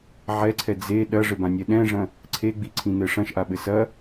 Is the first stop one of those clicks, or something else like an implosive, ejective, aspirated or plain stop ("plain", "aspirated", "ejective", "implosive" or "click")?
click